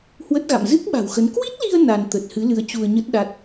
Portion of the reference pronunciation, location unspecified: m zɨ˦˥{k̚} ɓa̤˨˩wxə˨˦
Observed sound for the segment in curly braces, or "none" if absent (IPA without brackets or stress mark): k̚